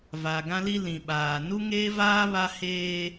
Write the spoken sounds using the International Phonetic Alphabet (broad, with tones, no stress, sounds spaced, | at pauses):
v a˨ ɡ ã˦ l i˦ l ĩ˨ ɓ aː˨ n u˦ ŋ eː˦ v aː˦ β a˦ h eː˦